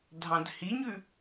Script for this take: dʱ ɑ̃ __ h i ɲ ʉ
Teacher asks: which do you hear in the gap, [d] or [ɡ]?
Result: d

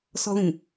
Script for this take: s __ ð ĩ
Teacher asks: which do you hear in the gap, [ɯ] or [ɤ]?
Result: ɤ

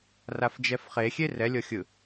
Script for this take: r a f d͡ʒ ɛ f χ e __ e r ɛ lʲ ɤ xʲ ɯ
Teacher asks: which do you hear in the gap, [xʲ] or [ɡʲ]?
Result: xʲ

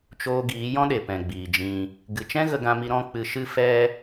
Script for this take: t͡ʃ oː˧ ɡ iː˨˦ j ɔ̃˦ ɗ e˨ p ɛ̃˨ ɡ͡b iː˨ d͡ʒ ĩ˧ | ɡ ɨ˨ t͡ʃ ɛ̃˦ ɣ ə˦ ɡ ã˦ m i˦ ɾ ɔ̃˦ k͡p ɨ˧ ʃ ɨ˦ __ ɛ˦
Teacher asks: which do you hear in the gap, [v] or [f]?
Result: f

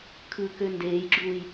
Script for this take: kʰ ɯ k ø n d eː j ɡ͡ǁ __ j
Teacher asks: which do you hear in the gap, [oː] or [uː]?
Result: uː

